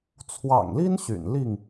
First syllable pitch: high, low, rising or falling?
low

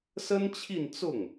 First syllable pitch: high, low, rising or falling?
high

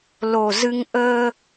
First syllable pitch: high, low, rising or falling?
low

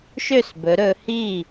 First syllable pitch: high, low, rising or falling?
falling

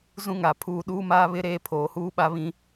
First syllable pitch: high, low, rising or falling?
high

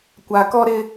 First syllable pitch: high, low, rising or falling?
low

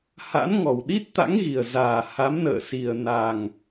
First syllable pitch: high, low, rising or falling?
rising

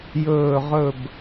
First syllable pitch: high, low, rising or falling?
falling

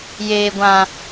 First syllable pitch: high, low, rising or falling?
low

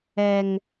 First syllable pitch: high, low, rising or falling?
high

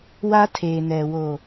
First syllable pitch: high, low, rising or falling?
high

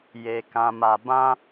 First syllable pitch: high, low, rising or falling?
low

